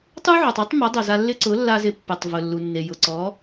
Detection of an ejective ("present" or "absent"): absent